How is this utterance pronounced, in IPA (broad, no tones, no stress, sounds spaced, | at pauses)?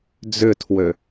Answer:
d͡z ʏ tʰ w ø